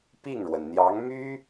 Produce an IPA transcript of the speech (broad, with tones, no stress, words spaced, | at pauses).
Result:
pi˥˩ŋɻwə˩nn̪jɑ˧˥ŋmy˥